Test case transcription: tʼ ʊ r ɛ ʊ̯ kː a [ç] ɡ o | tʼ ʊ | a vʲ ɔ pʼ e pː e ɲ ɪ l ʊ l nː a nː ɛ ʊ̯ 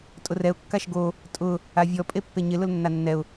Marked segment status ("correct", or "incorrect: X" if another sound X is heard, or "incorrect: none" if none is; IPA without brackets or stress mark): incorrect: ʃ